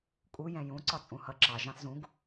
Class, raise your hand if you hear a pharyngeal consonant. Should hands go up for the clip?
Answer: no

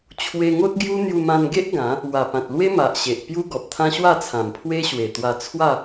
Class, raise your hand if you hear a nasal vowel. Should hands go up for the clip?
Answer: yes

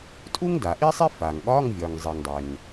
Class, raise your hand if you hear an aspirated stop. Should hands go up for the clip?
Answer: no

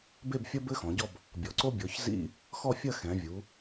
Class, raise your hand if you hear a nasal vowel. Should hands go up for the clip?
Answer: yes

